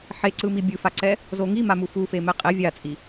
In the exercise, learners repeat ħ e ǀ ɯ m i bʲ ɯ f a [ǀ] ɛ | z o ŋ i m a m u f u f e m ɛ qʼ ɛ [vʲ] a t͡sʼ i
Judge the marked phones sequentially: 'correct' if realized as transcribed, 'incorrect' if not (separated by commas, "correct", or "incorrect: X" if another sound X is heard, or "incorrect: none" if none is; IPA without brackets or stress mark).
correct, correct